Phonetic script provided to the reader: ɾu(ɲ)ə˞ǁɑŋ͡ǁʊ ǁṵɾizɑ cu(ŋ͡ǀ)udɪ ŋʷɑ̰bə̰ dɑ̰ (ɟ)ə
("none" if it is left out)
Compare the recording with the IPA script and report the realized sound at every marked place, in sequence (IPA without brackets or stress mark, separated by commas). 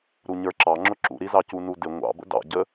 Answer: ɲ, n, ɟ